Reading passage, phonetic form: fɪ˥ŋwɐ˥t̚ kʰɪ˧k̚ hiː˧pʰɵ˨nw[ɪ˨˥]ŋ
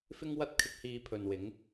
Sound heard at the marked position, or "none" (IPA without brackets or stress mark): ɪ˨˥